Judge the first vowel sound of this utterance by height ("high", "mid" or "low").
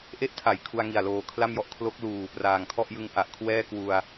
mid